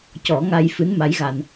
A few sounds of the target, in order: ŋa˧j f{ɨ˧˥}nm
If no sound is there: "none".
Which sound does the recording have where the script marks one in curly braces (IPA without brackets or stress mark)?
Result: ɨ˧˥